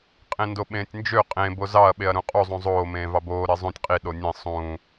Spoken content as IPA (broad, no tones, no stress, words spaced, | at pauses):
qʼẽndoɓẽːtʲnd͡ʒø qʼẽ bozɑɐ̯ ɓeɐ̯ɾũqʼu zˤũzˤoː mẽːvɑboː ɾezˤũtʲ qʼi ɗonʲẽ sˤũː